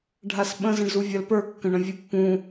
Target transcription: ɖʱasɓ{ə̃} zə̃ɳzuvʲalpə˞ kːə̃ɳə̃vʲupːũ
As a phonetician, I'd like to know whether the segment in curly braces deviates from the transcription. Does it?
no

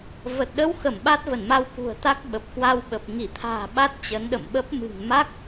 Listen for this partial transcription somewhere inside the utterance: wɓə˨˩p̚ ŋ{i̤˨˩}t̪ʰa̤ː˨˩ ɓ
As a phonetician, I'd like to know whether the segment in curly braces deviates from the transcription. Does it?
yes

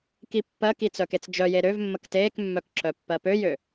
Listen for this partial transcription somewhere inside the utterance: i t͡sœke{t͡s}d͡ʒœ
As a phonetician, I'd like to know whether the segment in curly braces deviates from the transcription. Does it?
no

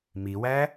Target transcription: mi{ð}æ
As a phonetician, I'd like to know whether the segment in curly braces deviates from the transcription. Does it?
yes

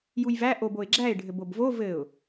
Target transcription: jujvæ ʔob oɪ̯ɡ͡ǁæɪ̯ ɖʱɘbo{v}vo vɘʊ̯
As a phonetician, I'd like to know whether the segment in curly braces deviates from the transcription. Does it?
yes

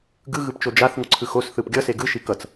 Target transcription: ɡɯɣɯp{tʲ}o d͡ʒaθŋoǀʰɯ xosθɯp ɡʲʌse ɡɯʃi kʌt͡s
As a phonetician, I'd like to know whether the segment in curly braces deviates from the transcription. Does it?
yes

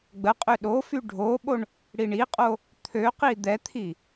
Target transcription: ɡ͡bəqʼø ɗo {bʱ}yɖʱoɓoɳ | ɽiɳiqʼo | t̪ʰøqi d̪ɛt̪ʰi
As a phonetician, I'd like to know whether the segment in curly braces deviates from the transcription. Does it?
yes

